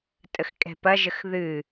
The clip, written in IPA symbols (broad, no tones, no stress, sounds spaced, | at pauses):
tʼ ə x kʼ ɛ̤ p ɐ ʒ ə x ð ɨ